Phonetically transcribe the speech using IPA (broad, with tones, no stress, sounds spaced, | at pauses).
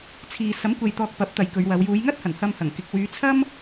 t͡sʰ iː˨ s ɐ˨˥ m kʷ e˨ j t̪ ɔː˨ k̚ p ɐ˨˥ p̚ t̪ ɐ˨˧ j k ɵ˨˧ ɥ w ɐ˨˧ w j uː˨˧ j ŋ ɐ˥ t̚ h ɐ˨˩ n h ɐ˧ m h ɐ˨˩ ŋ k ɪ˨ k̚ w yː˨˧ t͡sʰ ɐ˥ m